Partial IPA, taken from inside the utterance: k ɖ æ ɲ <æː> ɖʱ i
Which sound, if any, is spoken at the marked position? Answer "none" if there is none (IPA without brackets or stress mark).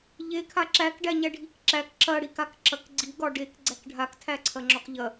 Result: æ